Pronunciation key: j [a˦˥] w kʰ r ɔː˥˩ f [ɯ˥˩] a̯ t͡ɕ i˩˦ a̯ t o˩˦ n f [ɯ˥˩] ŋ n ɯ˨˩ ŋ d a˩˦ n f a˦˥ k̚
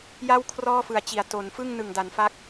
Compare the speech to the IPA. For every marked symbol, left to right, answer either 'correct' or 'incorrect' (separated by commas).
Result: incorrect, incorrect, correct